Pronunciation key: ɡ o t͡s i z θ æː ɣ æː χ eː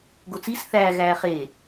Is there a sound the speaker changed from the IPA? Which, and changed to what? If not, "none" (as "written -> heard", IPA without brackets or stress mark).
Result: z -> s